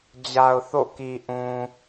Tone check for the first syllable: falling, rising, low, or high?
low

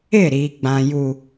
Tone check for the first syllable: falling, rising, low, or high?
falling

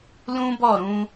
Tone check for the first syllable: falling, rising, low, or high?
high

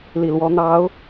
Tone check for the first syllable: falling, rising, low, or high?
low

